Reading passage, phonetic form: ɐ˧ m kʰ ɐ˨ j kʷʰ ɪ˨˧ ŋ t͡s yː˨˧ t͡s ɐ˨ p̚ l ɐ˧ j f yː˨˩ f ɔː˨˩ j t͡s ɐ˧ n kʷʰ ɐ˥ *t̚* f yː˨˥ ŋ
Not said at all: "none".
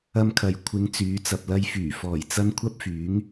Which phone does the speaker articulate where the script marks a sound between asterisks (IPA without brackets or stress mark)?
p̚